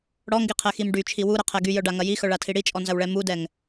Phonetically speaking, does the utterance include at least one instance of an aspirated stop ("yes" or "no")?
yes